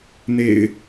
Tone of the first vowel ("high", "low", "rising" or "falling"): low